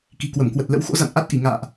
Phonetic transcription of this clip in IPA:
k i̤˨˩ k w ə˧˩ m k w ə˨˩ t̚ l ə̰˧˥ w x o̰˧˥ z a̰˧˨ n ʔ a˦˥ t̚ ʔ i˧˩ ŋ a̰ː˧˨ ʔ

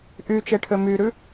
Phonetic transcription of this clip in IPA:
ʔ y t͡ʃ e ʈʰ ø m y ɾ ʉ

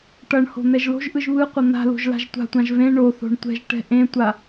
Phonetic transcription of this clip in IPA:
ʈ ʌ ɳ h o̤ n̪ ɛ ʒ l o̤ ʒ ʔ ɯ ʒ β ɯ qʷ ʌ n̪ a̤ l o̤ ʒ l a̤ ʒ tʷ a̤ tʷ ã ʒ v ẽ ɳ o θ o̤ ɳ tʷ ɛ̤ ʒ ʈ ɛ̤ ʔ ẽ tʷ a

